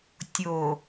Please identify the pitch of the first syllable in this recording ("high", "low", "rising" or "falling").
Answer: low